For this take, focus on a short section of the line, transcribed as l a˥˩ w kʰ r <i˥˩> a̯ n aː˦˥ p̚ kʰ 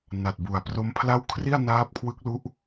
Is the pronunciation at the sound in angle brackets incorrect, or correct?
correct